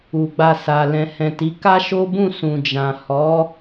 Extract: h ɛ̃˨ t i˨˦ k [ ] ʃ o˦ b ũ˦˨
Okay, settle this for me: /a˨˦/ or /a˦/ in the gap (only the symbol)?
a˦